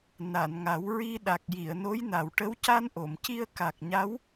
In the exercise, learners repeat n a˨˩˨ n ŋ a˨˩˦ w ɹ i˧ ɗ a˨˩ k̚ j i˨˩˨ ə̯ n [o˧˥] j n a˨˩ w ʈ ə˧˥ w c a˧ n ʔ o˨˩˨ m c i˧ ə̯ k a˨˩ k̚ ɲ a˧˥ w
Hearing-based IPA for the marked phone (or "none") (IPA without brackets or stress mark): o˧˥